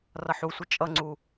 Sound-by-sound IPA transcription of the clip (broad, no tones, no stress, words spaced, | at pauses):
rʌħusʷɪ t͡ʃʼʌŋ͡ǀu